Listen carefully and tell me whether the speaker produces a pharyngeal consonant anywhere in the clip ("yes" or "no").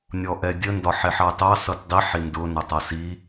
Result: yes